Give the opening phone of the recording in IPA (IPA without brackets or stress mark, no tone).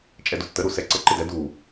t͡ʃʼ